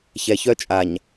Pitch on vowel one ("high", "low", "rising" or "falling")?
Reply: low